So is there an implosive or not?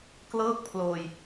no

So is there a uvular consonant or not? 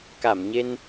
no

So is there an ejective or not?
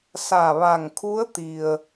no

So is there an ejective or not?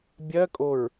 yes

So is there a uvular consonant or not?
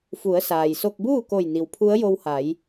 no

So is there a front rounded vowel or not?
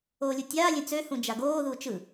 yes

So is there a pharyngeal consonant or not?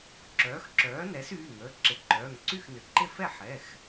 yes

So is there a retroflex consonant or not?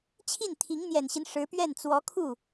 yes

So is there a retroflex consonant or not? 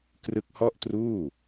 no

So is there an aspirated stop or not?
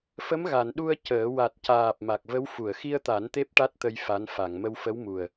no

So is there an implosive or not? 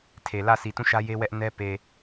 no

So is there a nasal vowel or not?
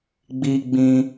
yes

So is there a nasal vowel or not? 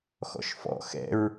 no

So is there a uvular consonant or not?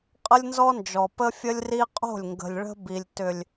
yes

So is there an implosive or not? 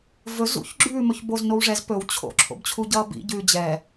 no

